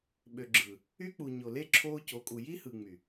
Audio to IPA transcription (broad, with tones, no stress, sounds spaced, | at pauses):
ɓ ø˨ ɡ͡ǁ ɯː˨ | y˦ k͡p u˨ ɲ o˨ l e˦ ǁʰ oː˦ c o˨˦ kʼ u˨ j i˦ h ɯ˨ ŋ͡m y˨